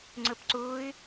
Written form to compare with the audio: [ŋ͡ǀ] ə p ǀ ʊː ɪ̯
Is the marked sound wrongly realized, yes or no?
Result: no